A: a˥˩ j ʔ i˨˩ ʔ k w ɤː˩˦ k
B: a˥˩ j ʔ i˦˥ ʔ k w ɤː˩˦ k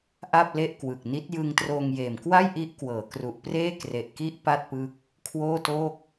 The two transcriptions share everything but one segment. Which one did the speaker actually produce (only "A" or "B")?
B